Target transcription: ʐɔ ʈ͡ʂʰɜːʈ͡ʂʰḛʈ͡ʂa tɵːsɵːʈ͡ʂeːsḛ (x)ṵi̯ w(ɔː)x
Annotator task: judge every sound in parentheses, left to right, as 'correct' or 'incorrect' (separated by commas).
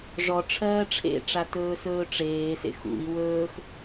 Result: correct, incorrect